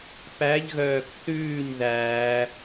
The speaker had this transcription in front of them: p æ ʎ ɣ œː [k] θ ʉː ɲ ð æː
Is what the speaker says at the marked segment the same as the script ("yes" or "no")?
yes